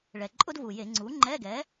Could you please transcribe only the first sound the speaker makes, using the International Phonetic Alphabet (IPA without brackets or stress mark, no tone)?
ɭ